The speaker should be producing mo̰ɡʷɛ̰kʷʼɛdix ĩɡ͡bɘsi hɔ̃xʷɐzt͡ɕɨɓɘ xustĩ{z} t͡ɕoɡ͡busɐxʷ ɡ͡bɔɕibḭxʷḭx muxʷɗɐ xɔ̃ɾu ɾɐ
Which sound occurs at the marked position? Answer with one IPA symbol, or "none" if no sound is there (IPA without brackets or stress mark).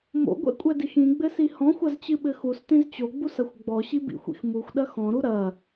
z